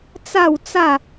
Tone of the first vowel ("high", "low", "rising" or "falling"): falling